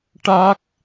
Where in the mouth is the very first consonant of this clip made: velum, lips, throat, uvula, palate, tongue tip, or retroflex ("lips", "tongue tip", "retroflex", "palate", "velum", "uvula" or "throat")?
retroflex